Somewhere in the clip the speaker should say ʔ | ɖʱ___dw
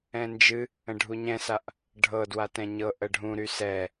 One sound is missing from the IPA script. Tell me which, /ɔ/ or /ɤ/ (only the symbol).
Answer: ɤ